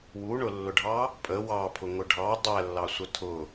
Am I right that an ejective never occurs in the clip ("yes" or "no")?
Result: no